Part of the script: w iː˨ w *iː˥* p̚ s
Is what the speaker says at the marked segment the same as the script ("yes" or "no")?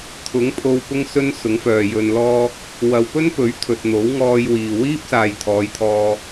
yes